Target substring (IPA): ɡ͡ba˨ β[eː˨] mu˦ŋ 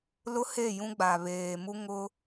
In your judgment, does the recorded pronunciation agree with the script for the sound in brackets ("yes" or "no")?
yes